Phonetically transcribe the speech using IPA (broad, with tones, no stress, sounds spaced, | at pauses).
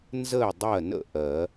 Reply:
n z ə˥˨ ɪ̯ dˤ ɜ˥˨ n ə̰˥˨ ʔ ɜ˨˩˦